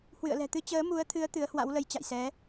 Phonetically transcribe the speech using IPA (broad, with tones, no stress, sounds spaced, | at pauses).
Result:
h w ɨ̰˧˨ ə̯ l ɛ̤˨˩ t̪ ɨ˨˦ t͡ɕ əː˨˦ m u˨˦ ə̯ t̪ʰ ɨ˨˦ ə̯ t̪ ɨ˨˦ ə̯ h w a̰˧˥ w l ə˨˦ j t͡ɕ a̰˧˨ j s ɛ˨˦